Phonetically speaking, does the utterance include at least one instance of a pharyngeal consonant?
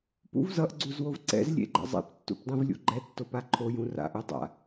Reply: no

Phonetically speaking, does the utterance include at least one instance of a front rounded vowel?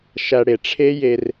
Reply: no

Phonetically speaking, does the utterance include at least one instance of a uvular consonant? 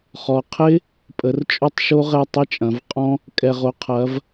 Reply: yes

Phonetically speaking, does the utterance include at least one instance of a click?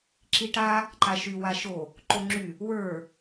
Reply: yes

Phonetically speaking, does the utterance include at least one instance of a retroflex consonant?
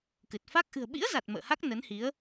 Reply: no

